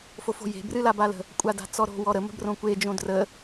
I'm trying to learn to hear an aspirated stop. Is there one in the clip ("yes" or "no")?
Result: no